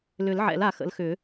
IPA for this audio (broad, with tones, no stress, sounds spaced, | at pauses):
l ʏ˨˩˦ l ʕ ɛ̰˨˩˦ l a˨˩˦ x ə̰˩˥ l x ʏ˨˩˦